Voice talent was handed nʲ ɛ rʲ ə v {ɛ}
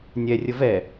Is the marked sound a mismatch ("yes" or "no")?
no